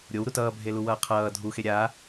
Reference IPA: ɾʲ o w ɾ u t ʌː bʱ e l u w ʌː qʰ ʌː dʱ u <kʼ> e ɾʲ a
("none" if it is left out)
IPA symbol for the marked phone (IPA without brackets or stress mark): x